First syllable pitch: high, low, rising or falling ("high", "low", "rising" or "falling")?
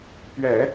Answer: low